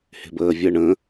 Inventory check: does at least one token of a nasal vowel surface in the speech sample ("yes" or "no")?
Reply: yes